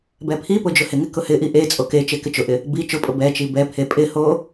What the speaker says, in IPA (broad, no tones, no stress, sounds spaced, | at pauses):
b ɛ pʰ i p ʊ d͡ʒ ʊ h ɪ ŋ ɪ k ʊ h ɪ ʔ i ʔ e t͡sʼ o k e t͡ʃ e k ɪ t͡ʃ ʊ ʔ ɪ | b i t͡ʃ ʊ pʼ ʊ b ɛ t͡ʃ i b ɛ pʰ e pʼ ɪ h o